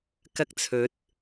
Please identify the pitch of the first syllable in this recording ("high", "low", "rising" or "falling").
high